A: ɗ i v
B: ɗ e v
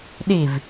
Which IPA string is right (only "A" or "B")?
A